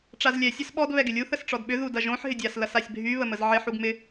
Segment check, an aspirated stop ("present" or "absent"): absent